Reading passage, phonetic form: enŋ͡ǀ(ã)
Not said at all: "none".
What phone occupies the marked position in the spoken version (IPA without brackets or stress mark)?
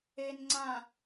ã